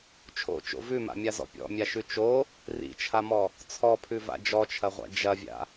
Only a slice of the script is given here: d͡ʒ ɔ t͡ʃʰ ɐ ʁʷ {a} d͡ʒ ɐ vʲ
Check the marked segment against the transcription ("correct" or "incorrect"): incorrect